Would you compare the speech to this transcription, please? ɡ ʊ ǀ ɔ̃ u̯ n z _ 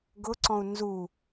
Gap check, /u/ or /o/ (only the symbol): u